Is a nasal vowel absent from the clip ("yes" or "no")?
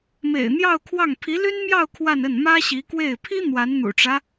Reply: yes